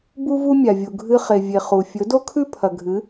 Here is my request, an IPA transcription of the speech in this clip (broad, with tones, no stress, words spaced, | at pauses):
bu˧vu˧ mʲa˨vʲu˨ ɡʱɨ˧χe˨ vʲe˨ χu˨ fʲɵ˨˦do˦kʰʉ˦ pʰɐ˨ɡʱɨ˨˦